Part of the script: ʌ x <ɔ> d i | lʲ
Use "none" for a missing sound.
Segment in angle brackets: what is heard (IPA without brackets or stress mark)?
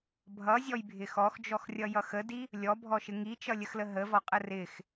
ə